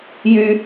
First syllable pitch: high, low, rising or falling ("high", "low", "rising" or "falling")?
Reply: high